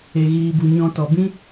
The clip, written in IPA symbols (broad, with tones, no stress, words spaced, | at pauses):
e˨ɣiː˨bu˨ ɲɔ̃˨ tɔ˨ bĩ˧